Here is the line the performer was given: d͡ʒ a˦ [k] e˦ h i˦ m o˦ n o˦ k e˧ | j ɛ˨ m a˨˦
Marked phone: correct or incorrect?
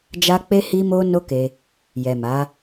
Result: incorrect